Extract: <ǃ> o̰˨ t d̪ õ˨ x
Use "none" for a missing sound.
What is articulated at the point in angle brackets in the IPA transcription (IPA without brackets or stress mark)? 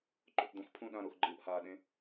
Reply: ǃ